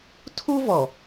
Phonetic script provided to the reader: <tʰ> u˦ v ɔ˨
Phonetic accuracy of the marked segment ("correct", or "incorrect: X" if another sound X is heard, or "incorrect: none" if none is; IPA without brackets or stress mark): correct